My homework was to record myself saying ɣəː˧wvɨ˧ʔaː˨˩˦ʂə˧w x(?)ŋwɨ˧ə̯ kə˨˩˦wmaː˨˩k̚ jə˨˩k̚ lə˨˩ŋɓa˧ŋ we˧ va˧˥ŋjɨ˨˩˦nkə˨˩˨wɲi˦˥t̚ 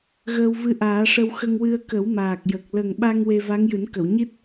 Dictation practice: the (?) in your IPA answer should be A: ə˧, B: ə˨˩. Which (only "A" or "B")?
A